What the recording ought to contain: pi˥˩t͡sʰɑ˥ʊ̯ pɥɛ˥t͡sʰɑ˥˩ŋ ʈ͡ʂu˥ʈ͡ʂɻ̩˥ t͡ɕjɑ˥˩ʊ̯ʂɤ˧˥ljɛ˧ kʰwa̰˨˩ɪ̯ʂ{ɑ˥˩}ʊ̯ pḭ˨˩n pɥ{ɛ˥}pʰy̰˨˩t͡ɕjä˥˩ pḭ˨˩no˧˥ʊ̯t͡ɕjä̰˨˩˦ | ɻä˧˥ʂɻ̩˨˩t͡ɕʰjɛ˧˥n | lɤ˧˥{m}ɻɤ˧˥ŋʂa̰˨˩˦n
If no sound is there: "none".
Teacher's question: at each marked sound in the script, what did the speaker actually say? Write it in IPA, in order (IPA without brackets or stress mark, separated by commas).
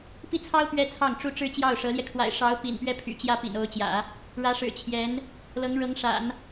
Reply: ɑ˧˥, ɛ˥, ŋ